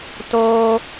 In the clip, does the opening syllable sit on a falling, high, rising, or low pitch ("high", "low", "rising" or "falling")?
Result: high